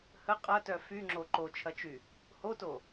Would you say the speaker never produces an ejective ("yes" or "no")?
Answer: no